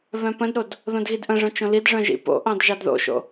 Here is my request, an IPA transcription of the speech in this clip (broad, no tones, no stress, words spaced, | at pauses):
βœ̃pə̃dɾod | ðõdɣidʔə̃ʐœ̃ t͡ʃõlidʐœ̃ ʒḭpo̰ʔɑ̃d ʒɑdðo̰ʃo̰